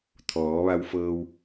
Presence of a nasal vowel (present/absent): absent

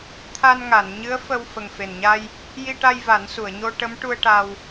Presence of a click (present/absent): absent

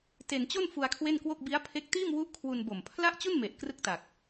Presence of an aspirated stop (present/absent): present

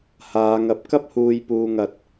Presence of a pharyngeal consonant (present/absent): absent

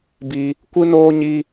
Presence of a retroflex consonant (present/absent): absent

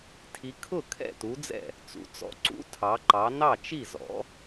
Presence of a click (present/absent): present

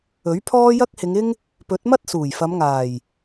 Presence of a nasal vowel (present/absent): absent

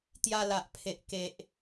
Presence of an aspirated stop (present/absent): present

